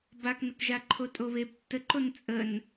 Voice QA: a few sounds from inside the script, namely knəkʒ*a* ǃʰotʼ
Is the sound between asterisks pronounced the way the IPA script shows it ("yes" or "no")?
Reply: yes